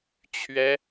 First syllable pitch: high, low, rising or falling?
high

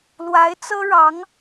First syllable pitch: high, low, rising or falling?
rising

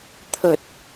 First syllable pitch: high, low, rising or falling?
low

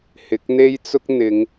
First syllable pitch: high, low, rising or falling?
rising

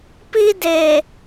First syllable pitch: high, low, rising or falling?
high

